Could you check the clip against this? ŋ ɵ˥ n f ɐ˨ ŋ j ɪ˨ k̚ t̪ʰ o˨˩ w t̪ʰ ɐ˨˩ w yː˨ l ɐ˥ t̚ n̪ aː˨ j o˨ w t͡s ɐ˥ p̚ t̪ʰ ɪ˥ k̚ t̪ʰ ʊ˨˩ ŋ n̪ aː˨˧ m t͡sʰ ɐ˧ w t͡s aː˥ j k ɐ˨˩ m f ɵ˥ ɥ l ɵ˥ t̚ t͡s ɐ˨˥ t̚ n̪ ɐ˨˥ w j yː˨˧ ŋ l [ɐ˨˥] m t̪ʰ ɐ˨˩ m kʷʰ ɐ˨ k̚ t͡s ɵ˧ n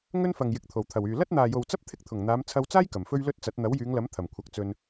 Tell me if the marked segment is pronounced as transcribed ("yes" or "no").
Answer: yes